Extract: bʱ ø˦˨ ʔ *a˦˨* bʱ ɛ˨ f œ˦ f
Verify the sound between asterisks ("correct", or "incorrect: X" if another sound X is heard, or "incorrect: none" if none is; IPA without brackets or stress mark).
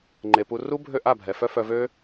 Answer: correct